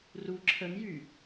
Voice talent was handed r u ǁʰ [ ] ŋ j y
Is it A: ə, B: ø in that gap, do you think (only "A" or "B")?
A